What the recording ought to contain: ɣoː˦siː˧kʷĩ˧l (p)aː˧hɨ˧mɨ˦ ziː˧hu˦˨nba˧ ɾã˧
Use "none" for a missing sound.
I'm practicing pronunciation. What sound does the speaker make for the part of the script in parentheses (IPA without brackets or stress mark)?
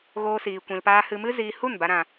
p